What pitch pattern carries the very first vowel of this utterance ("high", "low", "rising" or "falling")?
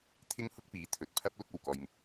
high